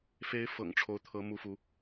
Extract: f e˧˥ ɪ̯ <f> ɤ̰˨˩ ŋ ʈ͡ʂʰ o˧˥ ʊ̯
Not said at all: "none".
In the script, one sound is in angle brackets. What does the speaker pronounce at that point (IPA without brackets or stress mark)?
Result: f